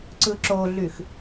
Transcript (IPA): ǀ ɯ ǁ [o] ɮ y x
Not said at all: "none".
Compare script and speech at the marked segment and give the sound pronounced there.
o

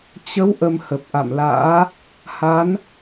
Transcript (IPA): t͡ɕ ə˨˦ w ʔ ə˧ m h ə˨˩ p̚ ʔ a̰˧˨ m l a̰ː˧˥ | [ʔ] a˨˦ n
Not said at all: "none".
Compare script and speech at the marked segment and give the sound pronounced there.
h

